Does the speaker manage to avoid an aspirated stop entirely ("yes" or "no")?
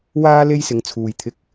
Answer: no